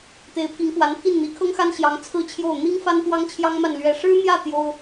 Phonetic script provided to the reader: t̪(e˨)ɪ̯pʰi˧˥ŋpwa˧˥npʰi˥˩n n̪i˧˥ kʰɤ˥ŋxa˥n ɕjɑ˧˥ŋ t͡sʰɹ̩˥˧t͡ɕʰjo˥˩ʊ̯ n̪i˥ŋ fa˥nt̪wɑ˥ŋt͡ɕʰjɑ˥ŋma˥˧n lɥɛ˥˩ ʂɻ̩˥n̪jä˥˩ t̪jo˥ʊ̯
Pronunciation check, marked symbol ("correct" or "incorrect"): incorrect